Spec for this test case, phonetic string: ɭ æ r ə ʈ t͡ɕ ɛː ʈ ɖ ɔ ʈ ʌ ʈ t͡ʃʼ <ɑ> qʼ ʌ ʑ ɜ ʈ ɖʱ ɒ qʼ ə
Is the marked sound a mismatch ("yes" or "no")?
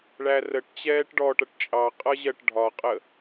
no